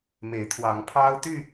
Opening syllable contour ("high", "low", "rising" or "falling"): rising